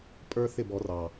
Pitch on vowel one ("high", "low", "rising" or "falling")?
high